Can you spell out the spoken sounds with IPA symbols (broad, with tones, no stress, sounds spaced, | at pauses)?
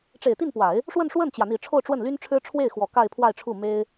ʈ͡ʂ e˨˩ ɪ̯ t̪ i˥˩ n p w a˨˩˦ ɪ̯ | ʂ w ə˥˧ n ʂ w ə˥˩ n t͡ɕ j ä˩ n̪ i˨˩ ʈ͡ʂʰ o˥˧ ʊ̯ ʈ͡ʂ w ə˥˩ n l y˥ n ʈ͡ʂʰ ɻ̩˥ ʈ͡ʂʰ w e˥˩ ɪ̯ x w ɔ˨˩ k a˥˧ ɪ̯ pʰ w a˥˧ ɪ̯ ʈ͡ʂʰ u˥˩ m e˥ ɪ̯